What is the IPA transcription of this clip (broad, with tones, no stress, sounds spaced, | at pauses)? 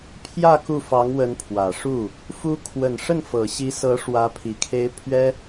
pʰ j ä˥˧ k u˥˩ f ɑ˧˥ ŋ w ə˧˥ n pʰ w ä˨˩ ʂ u˥˩ | f u˧˥ kʰ w ə˨˩ n ʂ ə˥˩ n f ɤ˨˩ ɕ i˧˥ s ɤ˧˥ ʂ w ä˧˥ pʰ i˨˩ kʰ e˧˥ ɪ̯ pʰ ɥ ɛ˥